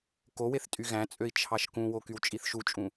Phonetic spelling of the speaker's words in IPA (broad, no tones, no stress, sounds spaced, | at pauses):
k o w e θ tʼ y ɣ æ̃ t͡sʼ ø i̯ t͡ʃʰ ɑ ʃ k ũ w o k y w t͡ʃʼ i θ ʃ u t͡ʃʼ ũ